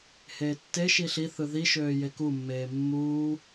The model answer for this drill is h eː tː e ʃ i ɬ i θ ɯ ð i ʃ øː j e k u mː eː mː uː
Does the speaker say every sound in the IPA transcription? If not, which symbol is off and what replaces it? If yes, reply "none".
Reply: none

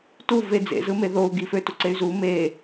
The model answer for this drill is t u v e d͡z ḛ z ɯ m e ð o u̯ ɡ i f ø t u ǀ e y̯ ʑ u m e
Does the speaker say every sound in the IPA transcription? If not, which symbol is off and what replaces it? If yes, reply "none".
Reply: ʑ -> z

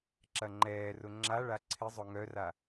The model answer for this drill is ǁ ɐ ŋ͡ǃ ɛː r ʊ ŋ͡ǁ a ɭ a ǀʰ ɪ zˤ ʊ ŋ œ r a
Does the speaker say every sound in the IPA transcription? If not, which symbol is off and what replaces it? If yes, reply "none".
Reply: none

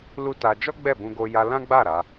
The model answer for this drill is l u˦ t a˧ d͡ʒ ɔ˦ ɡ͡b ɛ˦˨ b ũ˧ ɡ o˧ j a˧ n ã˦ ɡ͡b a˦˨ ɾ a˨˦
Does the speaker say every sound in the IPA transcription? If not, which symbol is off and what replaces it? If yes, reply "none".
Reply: n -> l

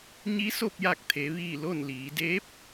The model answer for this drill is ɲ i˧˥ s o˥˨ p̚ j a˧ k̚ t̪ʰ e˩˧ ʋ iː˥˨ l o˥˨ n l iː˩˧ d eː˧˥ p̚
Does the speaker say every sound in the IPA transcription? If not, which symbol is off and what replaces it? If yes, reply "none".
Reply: none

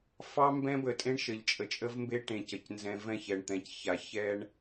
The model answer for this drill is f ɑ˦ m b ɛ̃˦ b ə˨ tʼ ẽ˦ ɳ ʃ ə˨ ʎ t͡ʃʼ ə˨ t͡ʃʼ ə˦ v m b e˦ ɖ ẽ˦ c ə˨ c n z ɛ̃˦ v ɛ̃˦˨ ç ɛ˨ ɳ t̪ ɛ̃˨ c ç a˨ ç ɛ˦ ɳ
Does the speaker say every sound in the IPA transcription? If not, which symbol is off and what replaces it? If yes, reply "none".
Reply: ɖ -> ʈ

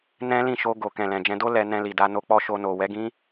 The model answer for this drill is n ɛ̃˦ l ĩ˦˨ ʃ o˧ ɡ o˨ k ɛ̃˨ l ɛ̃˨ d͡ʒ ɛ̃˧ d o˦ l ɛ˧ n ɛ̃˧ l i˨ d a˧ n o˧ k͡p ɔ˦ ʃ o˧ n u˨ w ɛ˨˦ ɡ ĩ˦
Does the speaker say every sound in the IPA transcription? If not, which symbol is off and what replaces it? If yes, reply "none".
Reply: u˨ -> o˨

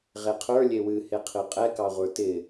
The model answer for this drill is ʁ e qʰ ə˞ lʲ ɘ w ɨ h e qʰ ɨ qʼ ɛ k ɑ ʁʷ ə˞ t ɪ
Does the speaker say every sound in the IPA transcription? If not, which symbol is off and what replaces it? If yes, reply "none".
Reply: ɘ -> e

